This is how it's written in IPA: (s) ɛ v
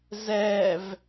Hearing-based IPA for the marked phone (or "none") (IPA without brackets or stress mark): z